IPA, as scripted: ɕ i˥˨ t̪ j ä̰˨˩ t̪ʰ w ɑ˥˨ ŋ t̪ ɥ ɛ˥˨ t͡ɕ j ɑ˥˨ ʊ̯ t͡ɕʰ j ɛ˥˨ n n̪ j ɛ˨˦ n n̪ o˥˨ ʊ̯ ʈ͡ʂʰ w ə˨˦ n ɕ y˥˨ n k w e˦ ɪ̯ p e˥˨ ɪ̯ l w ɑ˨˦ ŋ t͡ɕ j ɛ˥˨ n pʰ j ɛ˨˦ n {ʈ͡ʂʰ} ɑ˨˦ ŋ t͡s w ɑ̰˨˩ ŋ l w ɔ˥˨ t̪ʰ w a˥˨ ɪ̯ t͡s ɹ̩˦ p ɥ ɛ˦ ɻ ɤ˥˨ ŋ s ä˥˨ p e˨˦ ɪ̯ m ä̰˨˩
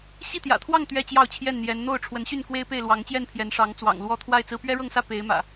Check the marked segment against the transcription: incorrect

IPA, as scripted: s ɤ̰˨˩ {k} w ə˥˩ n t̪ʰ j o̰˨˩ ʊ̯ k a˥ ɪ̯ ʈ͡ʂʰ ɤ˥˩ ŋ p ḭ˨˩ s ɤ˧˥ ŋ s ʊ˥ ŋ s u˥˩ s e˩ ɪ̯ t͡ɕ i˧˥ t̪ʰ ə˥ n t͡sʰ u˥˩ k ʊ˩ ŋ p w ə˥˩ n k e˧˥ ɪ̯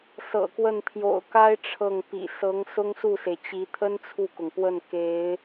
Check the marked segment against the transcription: correct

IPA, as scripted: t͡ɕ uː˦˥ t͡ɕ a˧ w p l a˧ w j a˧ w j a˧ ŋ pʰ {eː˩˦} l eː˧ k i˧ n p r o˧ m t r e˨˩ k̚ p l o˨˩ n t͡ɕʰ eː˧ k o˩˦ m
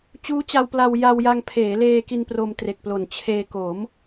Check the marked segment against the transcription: correct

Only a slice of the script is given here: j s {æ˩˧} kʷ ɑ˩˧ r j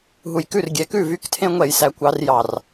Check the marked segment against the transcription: correct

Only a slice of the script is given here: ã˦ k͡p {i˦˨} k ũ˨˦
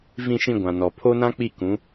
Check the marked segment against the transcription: correct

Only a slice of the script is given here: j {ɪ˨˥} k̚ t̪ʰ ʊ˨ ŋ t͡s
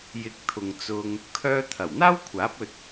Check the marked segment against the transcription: correct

